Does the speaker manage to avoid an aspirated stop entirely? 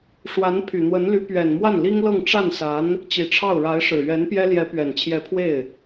no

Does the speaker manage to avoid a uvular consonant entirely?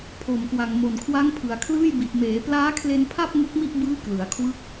yes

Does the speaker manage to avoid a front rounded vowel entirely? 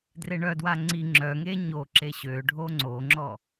no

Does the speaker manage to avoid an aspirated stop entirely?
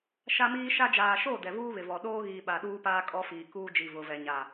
yes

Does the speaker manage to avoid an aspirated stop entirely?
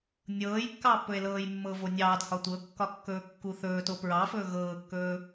yes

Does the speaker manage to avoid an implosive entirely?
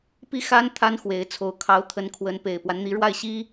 yes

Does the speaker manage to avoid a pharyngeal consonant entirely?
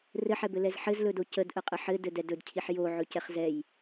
no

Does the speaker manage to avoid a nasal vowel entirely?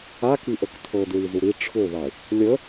yes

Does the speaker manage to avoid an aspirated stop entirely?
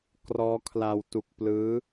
no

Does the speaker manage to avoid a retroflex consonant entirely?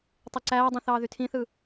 yes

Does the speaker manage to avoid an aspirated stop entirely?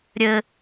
yes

